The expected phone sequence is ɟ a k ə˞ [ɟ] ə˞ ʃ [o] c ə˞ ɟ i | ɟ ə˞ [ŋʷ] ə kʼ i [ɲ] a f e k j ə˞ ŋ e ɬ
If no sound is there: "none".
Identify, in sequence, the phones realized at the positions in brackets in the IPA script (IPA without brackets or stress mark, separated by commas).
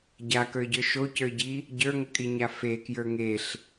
ɟ, o, ŋ, ɲ